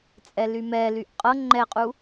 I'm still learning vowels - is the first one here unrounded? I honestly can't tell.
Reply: yes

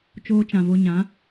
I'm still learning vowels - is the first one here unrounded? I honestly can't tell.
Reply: no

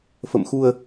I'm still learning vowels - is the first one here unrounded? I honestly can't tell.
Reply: yes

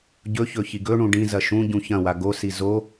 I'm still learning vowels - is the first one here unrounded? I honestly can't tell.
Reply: no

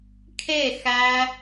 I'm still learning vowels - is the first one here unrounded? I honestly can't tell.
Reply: yes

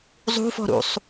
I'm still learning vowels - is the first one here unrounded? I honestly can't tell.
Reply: no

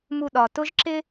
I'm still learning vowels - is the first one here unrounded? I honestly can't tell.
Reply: no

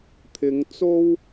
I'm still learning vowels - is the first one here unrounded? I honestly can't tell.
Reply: yes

